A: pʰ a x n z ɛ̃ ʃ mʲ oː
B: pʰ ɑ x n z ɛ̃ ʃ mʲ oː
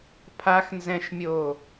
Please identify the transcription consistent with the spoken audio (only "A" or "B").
A